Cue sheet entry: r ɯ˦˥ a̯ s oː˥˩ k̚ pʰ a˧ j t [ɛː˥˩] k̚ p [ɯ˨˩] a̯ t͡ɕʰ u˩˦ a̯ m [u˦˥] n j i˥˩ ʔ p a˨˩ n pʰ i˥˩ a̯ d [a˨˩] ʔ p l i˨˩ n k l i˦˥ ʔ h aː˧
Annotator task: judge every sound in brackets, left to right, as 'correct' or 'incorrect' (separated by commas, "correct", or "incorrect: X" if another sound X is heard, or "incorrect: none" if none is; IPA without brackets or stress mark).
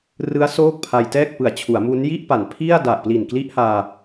correct, correct, correct, correct